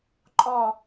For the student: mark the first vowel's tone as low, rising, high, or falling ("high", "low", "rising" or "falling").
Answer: falling